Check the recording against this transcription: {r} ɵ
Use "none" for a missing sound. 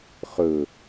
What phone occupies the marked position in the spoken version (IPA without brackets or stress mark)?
χ